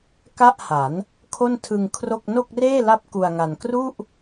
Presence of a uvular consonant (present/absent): absent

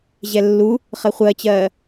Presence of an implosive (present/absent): absent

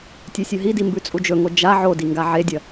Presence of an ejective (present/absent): present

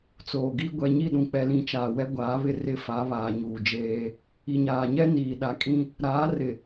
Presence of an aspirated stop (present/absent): absent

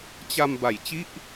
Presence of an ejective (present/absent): absent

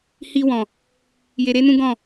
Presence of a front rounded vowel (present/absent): absent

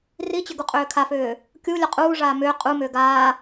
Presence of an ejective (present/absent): present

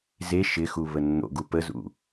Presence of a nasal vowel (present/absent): absent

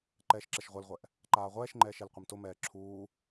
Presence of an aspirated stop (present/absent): present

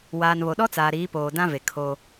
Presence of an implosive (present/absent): present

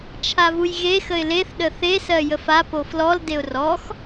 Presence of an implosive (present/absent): present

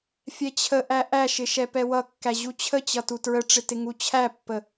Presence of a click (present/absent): absent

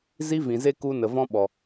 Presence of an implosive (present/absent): present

